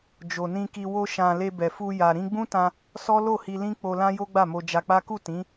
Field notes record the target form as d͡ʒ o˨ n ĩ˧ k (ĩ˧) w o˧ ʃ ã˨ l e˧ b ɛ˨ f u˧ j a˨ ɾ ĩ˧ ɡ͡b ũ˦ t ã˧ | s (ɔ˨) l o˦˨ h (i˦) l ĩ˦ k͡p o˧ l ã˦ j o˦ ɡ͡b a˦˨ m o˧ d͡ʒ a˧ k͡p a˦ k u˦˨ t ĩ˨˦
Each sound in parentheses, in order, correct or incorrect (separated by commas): incorrect, incorrect, incorrect